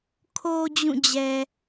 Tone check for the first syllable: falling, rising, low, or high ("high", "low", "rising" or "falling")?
low